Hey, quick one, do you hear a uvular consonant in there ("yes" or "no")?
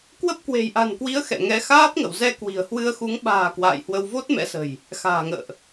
no